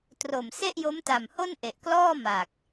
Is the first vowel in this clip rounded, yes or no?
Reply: yes